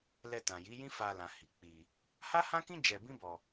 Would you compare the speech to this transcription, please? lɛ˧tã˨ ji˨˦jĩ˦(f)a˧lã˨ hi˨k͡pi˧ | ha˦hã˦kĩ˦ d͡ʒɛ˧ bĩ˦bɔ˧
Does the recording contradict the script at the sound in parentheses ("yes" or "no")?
no